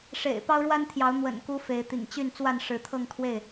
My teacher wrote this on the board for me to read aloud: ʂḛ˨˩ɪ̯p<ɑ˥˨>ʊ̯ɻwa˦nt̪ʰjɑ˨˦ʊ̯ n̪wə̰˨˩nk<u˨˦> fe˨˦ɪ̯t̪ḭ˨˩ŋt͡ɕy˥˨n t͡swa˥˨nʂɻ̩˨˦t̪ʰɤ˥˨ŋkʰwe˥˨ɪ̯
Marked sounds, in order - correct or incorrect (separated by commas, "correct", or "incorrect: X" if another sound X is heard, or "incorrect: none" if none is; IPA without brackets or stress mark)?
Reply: incorrect: ɑ˦, correct